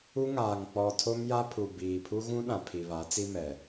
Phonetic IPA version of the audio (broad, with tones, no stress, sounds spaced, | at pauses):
u˦ ŋ aː˨ ŋ k͡p ɔ˨ tʰ o˦ m j a˦ pʰ u˨ b iː˨ pʰ u˦ ɣ ũ˦ ɗ ã˨ pʰ i˨ β a˨˦ t͡s i˦ m ɛ˨